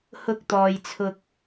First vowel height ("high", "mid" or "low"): high